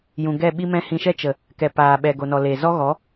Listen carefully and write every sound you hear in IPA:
j ũ˨ ɡ ɛ˦˨ ɓ i˦ m ɛ̃˦ h ĩ˧ ʃ ɛ˦ t͡ʃ ə˨ | k ɛ˨ p aː˨ ɓ ɛ˨ ɡ o˨ n ɔ˨ l e˨ z ɔ˦ ɣ ɔ˨˦

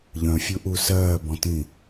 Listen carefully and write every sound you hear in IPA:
ʎ œ̃ fʲ u ʔ u s ɜː b ɔ̃ t ĩ

